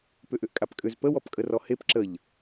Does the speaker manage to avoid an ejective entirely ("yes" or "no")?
no